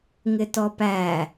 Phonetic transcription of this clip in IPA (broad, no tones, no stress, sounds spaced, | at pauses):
ŋ ɪ t ɔ p æ